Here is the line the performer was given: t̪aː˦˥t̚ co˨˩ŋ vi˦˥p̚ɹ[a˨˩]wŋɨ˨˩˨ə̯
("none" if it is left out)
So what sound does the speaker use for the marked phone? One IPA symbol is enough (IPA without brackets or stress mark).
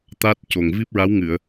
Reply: a˧˥